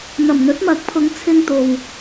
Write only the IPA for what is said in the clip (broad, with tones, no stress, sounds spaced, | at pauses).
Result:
n̪ ɐ˨˩ m n̪ ɵ˨˥ t̚ m ɐ˨˥ k̚ pʰ ʊ˨˧ ŋ t͡sʰ ɪ˧ ŋ t̪ o˨ w